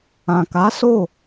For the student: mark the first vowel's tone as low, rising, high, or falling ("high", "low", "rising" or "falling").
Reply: low